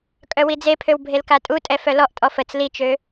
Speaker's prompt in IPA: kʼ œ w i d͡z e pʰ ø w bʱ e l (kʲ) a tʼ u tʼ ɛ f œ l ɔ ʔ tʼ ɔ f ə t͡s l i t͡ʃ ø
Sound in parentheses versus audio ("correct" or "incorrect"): incorrect